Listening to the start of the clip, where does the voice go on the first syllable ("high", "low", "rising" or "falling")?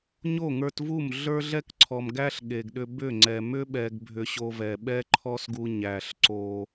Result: falling